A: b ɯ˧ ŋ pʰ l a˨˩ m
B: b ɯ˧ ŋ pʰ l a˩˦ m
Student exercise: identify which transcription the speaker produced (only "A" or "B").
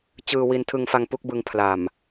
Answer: A